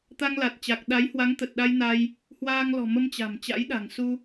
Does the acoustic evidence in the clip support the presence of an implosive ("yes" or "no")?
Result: yes